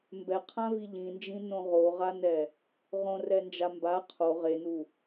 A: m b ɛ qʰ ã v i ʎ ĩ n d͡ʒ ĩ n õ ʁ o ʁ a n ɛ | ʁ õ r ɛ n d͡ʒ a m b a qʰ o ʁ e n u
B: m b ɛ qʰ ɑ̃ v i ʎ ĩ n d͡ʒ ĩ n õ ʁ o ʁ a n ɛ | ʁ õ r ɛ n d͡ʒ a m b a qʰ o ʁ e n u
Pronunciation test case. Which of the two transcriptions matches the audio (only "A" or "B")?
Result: A